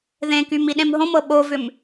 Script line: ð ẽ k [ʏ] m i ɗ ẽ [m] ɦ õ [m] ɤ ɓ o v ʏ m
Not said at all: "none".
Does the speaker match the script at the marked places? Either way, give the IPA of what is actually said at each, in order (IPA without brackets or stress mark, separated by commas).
y, m, m